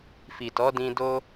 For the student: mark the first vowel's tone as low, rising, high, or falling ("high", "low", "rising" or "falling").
low